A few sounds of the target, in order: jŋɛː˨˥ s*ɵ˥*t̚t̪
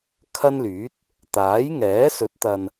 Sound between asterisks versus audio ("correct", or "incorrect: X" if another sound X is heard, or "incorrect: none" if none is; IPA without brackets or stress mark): incorrect: ɵ˨˥